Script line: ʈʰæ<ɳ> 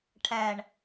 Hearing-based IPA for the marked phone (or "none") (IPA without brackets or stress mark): ɳ